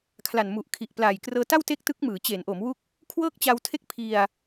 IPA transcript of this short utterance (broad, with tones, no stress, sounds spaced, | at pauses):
kʰ l a˨˩ n m u˨˩ ʔ kʰ i˨˩ ʔ p l aː˨˩ j k r ɤː˧ t a˥˩ w t e˥˩ k̚ t ɯ˦˥ k̚ m ɯː˩˦ t͡ɕ e˩˦ n ʔ o˩˦ m w u˦˥ k̚ | kʰ w ɤː˥˩ k̚ t͡ɕ a˧ w tʰ e˥˩ k̚ pʰ i˧ a̯